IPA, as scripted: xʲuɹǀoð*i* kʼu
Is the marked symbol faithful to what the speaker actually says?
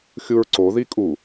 yes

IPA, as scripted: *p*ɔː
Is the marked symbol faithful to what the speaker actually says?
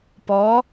yes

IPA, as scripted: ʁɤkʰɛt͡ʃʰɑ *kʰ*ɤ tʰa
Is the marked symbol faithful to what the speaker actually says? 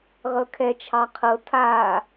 no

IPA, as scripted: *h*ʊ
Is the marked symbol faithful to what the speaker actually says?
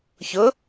no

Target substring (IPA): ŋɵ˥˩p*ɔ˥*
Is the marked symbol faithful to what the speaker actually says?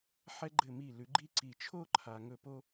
no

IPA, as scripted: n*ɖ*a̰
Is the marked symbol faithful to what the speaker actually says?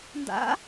no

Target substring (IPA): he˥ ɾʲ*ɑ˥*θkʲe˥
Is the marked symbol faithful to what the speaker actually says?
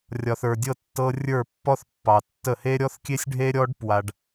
no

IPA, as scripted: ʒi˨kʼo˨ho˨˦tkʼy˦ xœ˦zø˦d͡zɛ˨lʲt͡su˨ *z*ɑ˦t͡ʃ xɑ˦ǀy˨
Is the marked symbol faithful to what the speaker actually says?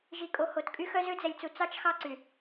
no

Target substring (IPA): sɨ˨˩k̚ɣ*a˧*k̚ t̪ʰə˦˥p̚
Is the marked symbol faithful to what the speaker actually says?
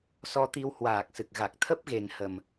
no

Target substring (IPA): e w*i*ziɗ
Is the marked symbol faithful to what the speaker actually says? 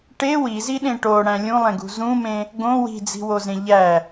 yes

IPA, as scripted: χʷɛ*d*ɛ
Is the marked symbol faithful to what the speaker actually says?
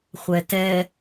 no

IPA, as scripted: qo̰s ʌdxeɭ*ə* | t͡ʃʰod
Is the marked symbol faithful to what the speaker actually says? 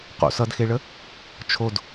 yes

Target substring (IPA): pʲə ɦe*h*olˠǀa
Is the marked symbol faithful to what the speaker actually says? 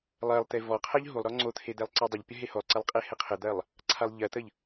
yes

